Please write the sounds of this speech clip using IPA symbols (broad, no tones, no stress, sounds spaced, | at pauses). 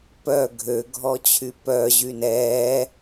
p œ ɡʱ ø ɡʱ ɔ t͡ɕʰ y p œ ʑ y n ɛ